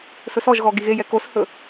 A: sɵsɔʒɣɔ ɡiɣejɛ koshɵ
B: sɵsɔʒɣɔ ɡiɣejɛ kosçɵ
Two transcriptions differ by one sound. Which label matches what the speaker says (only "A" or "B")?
A